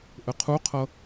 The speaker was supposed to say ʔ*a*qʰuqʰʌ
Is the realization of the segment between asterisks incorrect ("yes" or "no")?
yes